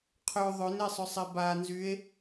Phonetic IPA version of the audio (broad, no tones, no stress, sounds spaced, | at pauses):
qʰ ø ðˤ ø n e sˤ ʏ sˤ e b a n z y e̯